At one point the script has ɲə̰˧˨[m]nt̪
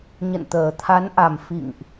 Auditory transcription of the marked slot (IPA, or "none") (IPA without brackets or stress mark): none